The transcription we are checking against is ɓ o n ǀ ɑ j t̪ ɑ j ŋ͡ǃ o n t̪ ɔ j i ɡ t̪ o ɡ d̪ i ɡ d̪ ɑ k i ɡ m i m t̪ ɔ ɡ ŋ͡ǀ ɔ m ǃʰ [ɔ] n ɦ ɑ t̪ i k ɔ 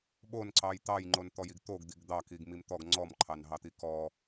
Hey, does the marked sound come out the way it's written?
no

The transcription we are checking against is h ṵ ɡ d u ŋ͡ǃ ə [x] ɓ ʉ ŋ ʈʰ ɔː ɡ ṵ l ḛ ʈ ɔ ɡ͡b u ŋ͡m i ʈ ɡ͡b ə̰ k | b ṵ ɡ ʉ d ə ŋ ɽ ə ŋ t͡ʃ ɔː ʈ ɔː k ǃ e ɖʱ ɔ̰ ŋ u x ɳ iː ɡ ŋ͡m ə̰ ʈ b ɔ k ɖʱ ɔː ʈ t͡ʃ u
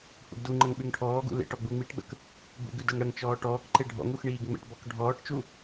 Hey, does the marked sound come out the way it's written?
no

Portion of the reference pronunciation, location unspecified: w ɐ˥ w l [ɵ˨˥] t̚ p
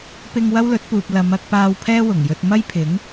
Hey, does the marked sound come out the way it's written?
yes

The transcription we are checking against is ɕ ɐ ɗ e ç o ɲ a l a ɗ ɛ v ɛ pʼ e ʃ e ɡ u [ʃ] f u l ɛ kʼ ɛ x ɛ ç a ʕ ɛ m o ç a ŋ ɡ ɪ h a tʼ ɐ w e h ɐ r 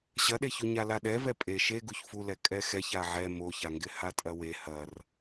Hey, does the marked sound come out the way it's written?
no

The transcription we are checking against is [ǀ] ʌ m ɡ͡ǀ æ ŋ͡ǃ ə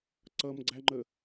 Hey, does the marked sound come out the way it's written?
yes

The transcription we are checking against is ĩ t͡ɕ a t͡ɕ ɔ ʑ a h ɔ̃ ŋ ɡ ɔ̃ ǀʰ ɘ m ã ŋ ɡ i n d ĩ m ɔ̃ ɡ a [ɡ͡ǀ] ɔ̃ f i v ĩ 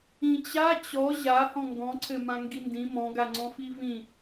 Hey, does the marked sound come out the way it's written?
no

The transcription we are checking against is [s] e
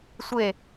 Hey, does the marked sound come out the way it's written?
no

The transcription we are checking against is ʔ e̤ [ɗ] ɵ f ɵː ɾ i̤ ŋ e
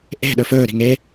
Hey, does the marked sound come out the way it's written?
yes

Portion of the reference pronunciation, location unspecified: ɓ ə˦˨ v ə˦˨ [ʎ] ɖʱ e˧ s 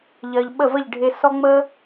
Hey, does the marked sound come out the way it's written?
yes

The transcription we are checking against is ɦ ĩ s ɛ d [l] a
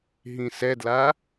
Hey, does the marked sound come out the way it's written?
yes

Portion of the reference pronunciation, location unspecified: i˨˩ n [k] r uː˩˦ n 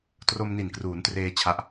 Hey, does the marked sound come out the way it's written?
yes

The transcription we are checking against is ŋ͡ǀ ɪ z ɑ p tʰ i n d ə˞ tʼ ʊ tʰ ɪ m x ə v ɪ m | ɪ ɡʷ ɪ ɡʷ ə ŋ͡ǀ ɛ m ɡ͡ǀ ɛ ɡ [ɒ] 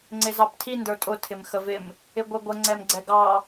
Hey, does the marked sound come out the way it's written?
no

